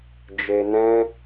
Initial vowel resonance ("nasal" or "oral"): oral